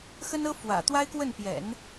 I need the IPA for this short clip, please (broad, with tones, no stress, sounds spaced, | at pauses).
x ə˥ n ɤ˥ f w ä̰˨˩ t̪ w a˥ ɪ̯ k w ə˥˩ n p j ɛ̰˨˩˦ n